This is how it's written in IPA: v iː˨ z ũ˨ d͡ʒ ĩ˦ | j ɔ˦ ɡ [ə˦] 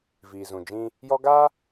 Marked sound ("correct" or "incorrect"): incorrect